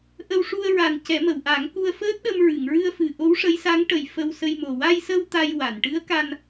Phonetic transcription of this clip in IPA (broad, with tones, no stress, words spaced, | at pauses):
ʔə˧wʂu˧ə̯ɹa˨˩n cɛ˨˩˦mə˨˩˨wʔa˨˩˦ŋku˧ə̯ fəː˦˥t̚ɗə˧mɹɨ˨˩˨ŋ ɹɨ˧ə̯fɨ˨˩ ʔo˧˥wʂə˧˥jsa˧˥ŋ ʈə˨˩j fə˧wsə˧jmo˨˩ wa˧jsə˧w t̪a˧jwa˨˩˨n ʈɨ˧˥ə̯ka˧n